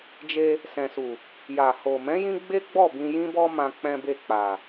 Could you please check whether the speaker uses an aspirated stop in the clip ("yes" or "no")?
no